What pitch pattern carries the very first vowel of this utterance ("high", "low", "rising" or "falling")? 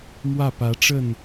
falling